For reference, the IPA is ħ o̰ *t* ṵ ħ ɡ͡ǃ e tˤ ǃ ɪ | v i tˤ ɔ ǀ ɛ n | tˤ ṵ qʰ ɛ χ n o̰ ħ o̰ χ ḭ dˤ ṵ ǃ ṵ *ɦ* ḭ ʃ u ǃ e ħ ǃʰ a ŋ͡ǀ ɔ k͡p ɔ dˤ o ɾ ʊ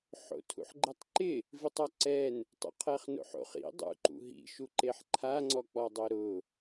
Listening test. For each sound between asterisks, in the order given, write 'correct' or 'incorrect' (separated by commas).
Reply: incorrect, correct